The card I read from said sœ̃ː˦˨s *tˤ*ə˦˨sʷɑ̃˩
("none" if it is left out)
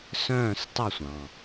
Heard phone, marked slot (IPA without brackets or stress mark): tˤ